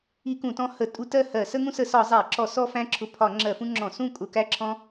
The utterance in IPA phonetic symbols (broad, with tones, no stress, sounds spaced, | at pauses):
i˦ k ũ˧˩˧ t ɔ̃˦ h ə˧˩˧ tʼ u˦ t ɜ˥˨ h ɜ˧˩˧ s ə˦ ŋ ũ˦ s ə˧˩˧ s ɒ˧˩˧ zˤ æ˧˩˧ ǁ ɔ˧˩˧ s ɔ˦ f æ̃˦ ǁʰ ʊ˧˩˧ pʰ ɒ˧˩˧ ŋ͡ǁ ɜ˧˩˧ f ũ˦ ŋ͡ǁ ɔ̃˧˩˧ s ũ˥˨ kʼ ʊ˧˩˧ k æ˦ ǁʰ ɔ̃˦